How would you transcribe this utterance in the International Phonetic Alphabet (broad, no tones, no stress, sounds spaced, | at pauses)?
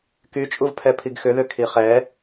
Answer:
k y t͡ʃʼ u v pʰ ɛ pʰ i ɡ x ʏ ð ʏ kʰ i χ ɛ